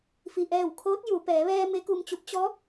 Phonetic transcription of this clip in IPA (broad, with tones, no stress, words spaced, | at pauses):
fi˩ʔɛː˧˩wkʰoː˧˥t̚ ju˩˧ pɛː˩˧ʋɛː˧ me˧˥ku˧mt͡ɕu˧˥p̚ t͡ɕɔː˧˥p̚